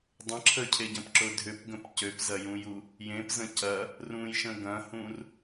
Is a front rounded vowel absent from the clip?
no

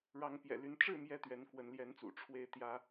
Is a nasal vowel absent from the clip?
yes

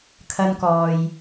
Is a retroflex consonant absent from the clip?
yes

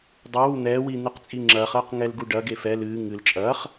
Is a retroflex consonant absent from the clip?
no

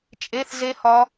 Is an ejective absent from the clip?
no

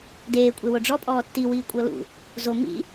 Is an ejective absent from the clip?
no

